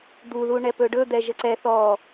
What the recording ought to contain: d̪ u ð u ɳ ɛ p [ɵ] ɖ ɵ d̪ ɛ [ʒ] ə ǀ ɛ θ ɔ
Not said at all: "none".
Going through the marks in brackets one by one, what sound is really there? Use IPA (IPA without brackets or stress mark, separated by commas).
ɵ, ʒ